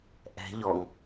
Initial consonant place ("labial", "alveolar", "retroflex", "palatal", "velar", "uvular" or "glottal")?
glottal